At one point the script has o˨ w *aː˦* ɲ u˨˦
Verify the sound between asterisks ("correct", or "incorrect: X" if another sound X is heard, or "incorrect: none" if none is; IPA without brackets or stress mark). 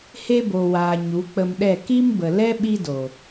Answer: incorrect: aː˨